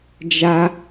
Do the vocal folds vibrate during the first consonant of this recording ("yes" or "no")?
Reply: yes